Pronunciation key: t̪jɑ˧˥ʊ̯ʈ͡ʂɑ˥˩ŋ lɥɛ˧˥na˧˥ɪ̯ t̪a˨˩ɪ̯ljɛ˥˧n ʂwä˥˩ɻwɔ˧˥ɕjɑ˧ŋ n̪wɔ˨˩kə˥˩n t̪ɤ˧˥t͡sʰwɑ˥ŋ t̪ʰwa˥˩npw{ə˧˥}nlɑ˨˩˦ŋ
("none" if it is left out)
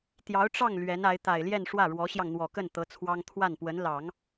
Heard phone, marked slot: ə˧˥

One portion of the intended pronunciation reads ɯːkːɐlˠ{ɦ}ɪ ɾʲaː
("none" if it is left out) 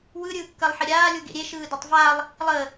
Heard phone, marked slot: ħ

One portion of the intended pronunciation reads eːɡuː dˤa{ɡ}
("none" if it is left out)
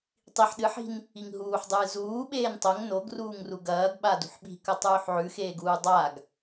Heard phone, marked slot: ɡ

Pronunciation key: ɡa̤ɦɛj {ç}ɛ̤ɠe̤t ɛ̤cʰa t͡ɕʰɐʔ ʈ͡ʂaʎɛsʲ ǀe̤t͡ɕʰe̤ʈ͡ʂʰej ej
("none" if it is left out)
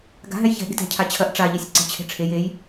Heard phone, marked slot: ç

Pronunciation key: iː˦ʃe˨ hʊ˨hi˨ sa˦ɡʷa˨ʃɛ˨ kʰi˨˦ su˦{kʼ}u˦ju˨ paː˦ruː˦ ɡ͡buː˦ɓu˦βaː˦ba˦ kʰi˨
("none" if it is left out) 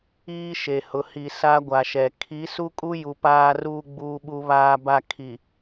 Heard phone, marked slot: kʼ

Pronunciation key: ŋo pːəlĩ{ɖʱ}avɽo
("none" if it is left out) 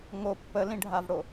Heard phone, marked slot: ɖʱ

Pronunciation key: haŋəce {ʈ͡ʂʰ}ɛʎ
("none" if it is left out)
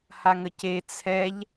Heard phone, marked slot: t͡sʰ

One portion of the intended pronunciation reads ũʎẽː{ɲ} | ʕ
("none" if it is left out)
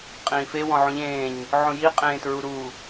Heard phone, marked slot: ɲ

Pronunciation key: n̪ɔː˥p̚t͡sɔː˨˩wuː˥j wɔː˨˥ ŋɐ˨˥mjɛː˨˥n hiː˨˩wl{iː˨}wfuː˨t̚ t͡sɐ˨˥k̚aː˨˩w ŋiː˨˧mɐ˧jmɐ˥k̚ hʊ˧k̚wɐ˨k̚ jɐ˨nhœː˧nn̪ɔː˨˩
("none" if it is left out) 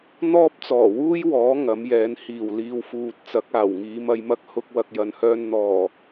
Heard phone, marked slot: iː˨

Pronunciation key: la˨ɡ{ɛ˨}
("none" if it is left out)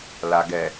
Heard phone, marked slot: ɛ˨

